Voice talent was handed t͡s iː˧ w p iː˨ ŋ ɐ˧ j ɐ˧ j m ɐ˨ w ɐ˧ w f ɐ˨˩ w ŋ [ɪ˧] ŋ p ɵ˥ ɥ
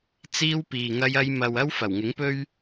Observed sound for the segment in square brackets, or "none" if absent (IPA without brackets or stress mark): ɪ˨˥